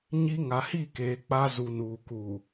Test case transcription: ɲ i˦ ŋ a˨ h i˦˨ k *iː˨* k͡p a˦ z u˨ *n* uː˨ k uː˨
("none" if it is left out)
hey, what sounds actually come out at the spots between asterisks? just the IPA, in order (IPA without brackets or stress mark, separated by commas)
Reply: eː˨, n